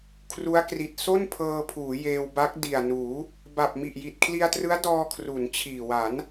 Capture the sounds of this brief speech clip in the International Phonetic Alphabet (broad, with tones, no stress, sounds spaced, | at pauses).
kʰ r u˦˥ a̯ k r i˨˩ t̚ s o˥˩ n pʰ ɤː˧ pʰ uː˩˦ j eː˧ w b a˦˥ k̚ d i˨˩ a̯ n uː˩˦ | b a˨˩ p̚ m i˨˩ ʔ j i˨˩ t̚ kʰ l i˧ a̯ t r ɯ˦˥ a̯ d ɔː˧ kʰ r u˩˦ n t͡ɕʰ iː˨˩ w a˩˦ n